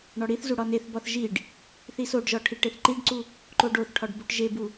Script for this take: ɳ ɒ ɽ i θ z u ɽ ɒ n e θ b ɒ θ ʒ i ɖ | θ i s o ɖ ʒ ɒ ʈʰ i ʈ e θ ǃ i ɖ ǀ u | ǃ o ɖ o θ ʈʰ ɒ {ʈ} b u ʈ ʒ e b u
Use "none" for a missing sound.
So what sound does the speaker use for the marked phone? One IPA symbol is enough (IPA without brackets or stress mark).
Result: ɖ